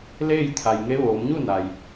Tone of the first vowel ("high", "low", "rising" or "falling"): falling